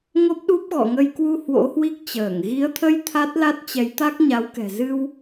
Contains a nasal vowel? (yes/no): no